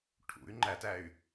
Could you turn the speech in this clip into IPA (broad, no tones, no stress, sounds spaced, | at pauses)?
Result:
ʈʰ ṵ y̯ ŋ͡ǃ æ t æ y̯